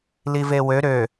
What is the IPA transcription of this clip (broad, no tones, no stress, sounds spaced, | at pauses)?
l i v e w ø ɾ ø